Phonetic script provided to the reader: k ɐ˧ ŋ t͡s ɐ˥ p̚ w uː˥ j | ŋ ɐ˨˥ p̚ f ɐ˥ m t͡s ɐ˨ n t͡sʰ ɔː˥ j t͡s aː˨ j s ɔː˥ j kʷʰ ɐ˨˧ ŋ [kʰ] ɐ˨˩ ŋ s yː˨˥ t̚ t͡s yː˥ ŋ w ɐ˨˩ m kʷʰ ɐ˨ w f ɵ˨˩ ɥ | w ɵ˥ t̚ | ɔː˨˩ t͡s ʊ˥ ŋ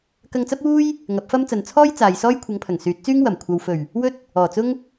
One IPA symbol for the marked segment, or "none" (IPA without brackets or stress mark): pʰ